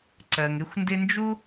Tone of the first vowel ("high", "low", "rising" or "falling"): low